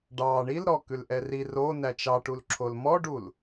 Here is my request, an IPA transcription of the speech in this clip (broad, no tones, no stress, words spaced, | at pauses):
ɖɑ ɳil ɾɔ kʉlʔɛri ro næt͡ʃɑʈulǁʰol mɔɖul